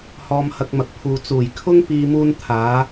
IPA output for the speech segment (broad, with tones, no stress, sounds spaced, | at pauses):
h ɔː˧ m h ɐ˧ k̚ m ɐ˨˥ k̚ pʰ uː˨ t͡s uː˨˩ j kʰ ʊ˥ ŋ p iː˧ m uː˥ n t̪ʰ aː˨˥